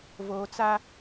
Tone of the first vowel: low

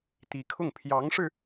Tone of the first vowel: rising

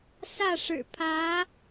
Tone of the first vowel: falling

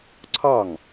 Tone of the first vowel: falling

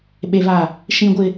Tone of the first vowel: low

